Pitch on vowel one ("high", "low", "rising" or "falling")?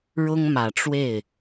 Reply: high